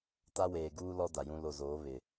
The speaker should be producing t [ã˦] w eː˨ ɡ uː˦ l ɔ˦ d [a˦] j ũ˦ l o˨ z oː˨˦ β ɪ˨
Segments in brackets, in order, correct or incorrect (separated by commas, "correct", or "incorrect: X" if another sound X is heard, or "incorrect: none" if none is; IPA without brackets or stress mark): incorrect: a˦, incorrect: a˨